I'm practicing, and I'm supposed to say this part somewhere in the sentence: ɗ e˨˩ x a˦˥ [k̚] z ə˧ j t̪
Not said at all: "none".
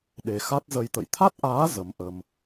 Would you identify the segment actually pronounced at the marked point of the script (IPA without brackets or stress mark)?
t̚